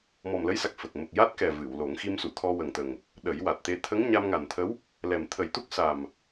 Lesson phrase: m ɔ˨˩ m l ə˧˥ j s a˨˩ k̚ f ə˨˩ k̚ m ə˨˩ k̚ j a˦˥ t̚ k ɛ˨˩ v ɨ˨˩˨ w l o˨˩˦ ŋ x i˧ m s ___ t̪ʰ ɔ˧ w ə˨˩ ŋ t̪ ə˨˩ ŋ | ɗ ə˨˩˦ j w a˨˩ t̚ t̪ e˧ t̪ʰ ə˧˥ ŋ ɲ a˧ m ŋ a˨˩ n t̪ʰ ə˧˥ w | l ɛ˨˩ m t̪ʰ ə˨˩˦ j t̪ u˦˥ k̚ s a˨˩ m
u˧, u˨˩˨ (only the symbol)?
u˨˩˨